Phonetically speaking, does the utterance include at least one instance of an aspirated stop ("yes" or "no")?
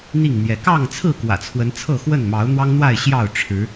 yes